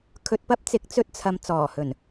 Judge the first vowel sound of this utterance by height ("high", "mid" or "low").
mid